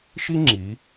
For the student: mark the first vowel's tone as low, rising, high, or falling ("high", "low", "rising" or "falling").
high